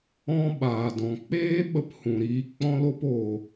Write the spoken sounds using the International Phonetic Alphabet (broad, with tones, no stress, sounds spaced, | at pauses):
ɔ̃˦ ɓ aː˨ d ɔ̃˨ k͡p eː˦ ɓ ə˦ p h ũ˨ ɾ iː˧ k͡p ɔ̃˧ l o˧ p o˨